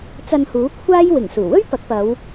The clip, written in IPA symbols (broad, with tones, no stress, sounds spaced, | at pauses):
t͡s ɐ˧ n h uː˨˥ kʷʰ aː˥ j w ɪ˨˩ ŋ s uː˨˩ w ɵ˥ ɥ p ɐ˨˥ k̚ p ɐ˨˧ w